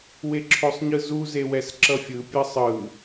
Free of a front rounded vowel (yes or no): yes